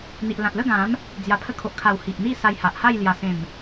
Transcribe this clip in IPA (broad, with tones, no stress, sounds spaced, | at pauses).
n̪ i˨ ʔ l ã˨ t̚ l ə˥˧ ɡ ã˨˦ m | d͡z j a˨˩ pʰ ə˧ kʰ o˨ ʔ kʰ a˨˩ w h i˨ ʔ n̪ i˥˧ s a˧ j h a˨ ʔ h a˥˧ j l j a˨˩ s ẽ˨˩ m